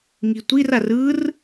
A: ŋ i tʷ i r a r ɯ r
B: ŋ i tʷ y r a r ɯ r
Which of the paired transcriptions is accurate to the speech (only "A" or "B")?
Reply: A